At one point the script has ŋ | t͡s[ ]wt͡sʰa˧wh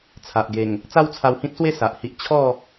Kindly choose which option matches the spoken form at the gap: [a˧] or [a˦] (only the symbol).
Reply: a˦